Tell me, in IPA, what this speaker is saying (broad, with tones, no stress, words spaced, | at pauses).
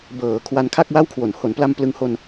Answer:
bɤː˩˦ kʰwa˧nkʰa˥˩k̚wa˥˩wkʰwo˨˩n ho˩˦npla˧m plɯ˧ŋ ho˧n